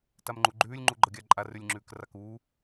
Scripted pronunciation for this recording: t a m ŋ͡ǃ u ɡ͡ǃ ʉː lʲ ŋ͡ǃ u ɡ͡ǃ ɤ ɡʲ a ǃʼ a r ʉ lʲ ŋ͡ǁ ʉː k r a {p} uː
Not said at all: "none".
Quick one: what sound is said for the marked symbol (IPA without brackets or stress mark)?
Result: k